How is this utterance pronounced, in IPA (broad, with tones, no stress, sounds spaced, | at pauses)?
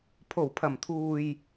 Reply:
pʰ o˨˩ w pʰ ɐ˨˩ m t̪ʰ uː˨ j